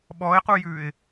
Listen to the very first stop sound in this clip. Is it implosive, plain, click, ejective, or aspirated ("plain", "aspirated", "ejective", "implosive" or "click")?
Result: implosive